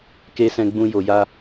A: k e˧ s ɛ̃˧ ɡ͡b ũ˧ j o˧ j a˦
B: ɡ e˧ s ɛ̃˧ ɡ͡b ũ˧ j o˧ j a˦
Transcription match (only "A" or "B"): A